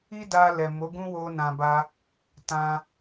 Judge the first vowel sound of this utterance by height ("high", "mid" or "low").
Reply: high